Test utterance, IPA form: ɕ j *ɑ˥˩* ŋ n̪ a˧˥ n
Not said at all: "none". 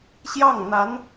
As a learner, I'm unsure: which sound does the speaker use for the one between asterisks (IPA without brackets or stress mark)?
ɑ˥˩